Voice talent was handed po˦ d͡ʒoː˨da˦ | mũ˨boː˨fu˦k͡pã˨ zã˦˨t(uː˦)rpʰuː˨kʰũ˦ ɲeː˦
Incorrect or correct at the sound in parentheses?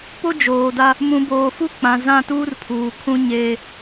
correct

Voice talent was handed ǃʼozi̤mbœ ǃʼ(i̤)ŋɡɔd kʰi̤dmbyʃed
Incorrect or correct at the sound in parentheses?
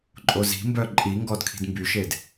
incorrect: i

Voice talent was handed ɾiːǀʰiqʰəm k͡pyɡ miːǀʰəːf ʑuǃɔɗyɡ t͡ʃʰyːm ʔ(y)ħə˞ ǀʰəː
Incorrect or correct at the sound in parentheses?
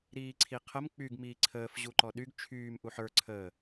incorrect: u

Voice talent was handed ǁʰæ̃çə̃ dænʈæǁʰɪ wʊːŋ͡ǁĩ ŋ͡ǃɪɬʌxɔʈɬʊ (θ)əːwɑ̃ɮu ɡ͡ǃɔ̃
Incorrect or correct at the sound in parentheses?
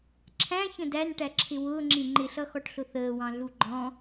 correct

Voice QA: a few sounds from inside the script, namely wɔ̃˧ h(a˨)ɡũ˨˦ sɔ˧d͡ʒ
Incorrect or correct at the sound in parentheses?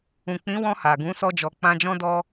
correct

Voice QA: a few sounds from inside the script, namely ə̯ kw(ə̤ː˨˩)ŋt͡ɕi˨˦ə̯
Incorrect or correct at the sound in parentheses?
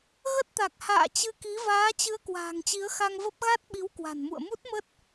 incorrect: a̤ː˨˩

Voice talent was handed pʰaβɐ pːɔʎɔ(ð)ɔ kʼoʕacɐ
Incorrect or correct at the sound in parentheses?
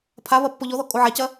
correct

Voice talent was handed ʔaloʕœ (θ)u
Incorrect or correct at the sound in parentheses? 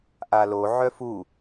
incorrect: f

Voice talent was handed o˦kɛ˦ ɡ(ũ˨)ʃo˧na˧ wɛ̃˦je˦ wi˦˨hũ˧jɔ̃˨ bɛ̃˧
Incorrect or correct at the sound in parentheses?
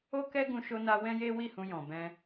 incorrect: ũ˧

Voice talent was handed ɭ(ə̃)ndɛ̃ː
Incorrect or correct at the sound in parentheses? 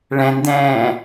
incorrect: ɛ̃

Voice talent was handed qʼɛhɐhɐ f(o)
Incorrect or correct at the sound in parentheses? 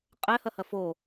correct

